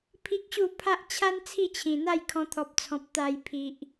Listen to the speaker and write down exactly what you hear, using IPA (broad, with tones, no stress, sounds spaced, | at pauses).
pʰ i˦ k̚ ɕ u˥˧ pʰ a˦ ʔ t͡ɕʰ a˦ n t͡sʰ i˥˧ t͡ɕʰ ĩ˨˩ n̪ a˥˧ j kʰ ɔ̃˧ t̪ʰ ɔ˨ p̚ t͡sʰ ɔ̃˨ p̚ t̪ a˨˩ j pʰ i˨ ʔ